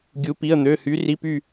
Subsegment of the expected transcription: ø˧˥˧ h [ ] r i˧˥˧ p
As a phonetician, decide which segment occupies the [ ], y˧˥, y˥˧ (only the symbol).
y˧˥